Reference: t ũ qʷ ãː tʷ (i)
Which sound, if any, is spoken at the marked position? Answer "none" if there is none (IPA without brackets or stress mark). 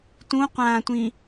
ĩ